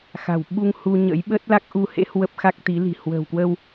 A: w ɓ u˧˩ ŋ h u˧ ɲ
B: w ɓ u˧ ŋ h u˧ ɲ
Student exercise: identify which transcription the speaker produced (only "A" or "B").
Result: B